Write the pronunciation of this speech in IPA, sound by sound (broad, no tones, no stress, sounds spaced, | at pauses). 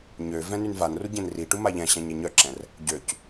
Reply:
ɲ ø v ɛ̃ n y n v a n r u ɟ ẽ n r i ʈ u m a ʎ ɛ̃ ɕ ɛ̃ ɲ e ɲ œ ǁ ɛ̃ r | ɟ ø c